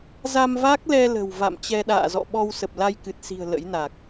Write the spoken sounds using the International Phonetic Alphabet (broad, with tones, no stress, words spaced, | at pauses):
za˧mva˦˥k̚lɛ˧lə̤˨˩w va̰˧˨mt͡ɕɛ˧ɗa̰ː˧˨zɔ̰˧˨ ɓɔ˧wsə˨˩p̚la˧j kɨ˨˩t̚si̤˨˩ə̯ lə̰˧˥jna˨˩k̚